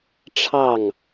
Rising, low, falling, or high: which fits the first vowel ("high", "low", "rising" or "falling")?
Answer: falling